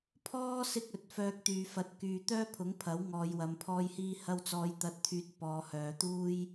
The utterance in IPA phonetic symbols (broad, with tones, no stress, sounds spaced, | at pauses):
pʰ ɔː˥ s ɪ˥ k̚ ɵ˨˥ t̚ f œː˧ k̚ t̪ yː˨ f ɐ˨˥ t̚ k yː˨ t̪ œː˥ pʰ ʊ˨˥ ŋ pʰ ɐ˨˥ w ŋ ɔː˨˧ j w ɐ˧ m pʰ ɔː˥ j h iː˥ h ɐ˧ w t͡s ɔː˨˧ j t̪ ɐ˨ t̚ t̪ʰ yː˨ t̚ p ɔː˨˧ h œː˨˧ t̪ uː˥ j